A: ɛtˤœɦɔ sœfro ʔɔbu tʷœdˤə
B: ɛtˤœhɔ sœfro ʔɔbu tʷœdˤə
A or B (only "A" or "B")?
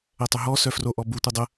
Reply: A